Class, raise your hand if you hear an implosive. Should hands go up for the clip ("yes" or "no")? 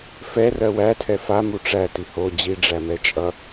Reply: no